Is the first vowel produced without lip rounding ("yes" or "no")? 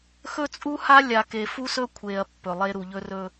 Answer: no